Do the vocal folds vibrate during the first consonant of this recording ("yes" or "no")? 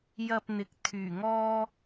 yes